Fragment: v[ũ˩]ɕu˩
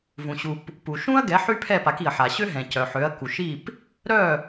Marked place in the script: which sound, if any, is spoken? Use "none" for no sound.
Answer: ũ˩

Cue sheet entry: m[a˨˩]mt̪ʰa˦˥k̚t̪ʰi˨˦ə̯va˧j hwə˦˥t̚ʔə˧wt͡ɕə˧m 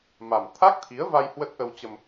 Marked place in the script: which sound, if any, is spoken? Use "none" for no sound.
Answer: a˨˩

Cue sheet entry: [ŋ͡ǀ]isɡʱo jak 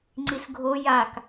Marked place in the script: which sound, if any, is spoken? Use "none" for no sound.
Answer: ŋ͡ǀ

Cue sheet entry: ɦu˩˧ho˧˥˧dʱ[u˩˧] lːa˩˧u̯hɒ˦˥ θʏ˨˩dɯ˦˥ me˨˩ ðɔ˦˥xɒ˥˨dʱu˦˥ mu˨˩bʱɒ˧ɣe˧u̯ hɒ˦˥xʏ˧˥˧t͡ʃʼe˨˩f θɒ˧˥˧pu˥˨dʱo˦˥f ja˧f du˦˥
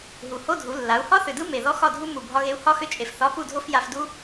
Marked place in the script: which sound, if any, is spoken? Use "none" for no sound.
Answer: u˩˧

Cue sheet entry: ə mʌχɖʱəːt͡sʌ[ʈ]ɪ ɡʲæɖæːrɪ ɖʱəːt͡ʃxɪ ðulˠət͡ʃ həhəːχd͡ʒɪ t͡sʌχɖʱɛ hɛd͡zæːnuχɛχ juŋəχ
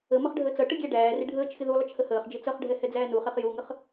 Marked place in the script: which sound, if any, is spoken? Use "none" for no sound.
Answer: ʈ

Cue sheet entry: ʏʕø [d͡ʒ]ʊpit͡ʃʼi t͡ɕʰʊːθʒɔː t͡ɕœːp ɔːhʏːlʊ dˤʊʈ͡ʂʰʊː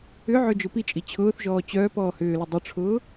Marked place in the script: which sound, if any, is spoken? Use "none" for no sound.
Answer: d͡ʒ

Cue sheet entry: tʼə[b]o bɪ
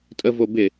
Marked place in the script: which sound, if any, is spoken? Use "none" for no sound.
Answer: v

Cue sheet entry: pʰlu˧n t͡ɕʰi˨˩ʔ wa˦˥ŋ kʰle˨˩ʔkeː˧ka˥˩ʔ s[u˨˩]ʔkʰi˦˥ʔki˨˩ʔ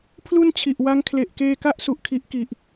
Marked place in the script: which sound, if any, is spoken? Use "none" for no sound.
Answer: u˨˩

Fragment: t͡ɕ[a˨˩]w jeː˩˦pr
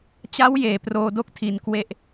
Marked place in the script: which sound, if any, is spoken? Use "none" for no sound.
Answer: a˦˥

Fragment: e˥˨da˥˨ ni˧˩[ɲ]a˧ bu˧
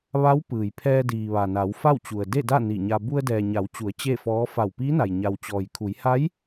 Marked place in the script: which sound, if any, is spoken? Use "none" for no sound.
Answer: ɲ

